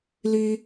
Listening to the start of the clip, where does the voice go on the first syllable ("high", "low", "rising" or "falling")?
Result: high